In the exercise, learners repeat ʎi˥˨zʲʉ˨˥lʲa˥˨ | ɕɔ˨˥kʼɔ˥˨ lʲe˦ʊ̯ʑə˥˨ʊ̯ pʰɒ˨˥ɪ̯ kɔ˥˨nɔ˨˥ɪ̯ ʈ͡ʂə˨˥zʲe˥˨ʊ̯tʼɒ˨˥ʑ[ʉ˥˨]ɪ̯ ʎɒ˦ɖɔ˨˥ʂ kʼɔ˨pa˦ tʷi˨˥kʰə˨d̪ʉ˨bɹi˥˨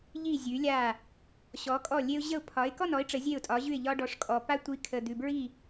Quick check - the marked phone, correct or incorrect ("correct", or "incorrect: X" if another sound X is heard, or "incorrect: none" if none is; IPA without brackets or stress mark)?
correct